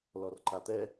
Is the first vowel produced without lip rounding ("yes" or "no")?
no